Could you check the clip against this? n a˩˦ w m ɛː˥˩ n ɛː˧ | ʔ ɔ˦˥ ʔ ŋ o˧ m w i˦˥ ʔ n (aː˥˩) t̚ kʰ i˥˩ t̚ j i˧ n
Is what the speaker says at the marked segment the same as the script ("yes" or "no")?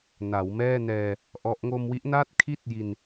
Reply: yes